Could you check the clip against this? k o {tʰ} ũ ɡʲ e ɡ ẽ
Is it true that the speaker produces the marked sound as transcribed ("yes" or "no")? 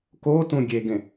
no